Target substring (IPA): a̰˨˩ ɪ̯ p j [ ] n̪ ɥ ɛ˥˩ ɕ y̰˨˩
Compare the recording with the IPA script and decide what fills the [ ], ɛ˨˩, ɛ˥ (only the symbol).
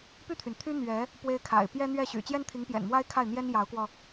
ɛ˥